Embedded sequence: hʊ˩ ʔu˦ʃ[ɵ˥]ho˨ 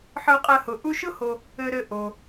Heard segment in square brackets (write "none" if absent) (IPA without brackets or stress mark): ʊ˥